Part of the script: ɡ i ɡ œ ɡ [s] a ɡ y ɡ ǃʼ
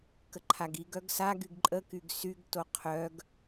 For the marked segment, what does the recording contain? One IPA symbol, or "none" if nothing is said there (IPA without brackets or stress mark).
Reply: s